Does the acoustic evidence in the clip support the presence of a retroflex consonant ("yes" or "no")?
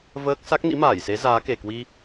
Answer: no